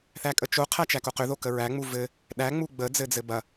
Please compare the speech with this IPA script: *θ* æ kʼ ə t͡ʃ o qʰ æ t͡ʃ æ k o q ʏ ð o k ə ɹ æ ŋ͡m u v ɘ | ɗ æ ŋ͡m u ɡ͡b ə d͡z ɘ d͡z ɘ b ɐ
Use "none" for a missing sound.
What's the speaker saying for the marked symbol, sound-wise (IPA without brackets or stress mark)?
θ